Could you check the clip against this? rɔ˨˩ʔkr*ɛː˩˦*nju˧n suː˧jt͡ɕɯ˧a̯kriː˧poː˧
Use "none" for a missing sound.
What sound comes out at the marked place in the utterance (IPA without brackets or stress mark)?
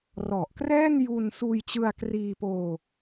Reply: ɛː˥˩